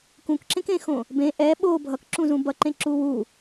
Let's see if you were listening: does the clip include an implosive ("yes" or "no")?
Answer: yes